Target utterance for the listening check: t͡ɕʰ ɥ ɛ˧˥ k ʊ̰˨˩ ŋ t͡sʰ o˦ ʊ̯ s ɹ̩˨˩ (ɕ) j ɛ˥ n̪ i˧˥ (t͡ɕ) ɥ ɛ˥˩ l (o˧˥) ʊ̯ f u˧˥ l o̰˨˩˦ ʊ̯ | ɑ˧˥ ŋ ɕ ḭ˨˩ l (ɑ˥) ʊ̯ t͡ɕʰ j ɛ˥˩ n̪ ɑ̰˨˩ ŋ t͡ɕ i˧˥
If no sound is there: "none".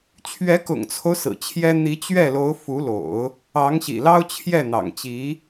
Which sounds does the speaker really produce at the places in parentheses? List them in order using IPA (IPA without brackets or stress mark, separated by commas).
t͡ɕʰ, t͡ɕ, o˧˥, ɑ˥